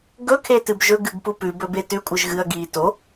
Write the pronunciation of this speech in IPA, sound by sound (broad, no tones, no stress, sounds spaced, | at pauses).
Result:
ɡ ɵ kʰ e t ɨ b ʒ ɵ ɡ ɨ ɡ p u p ʉ b ɵ b e t ʉ kʷʼ ɨ ʒ ɣ ɨ ɐ̯ ɡ iː t o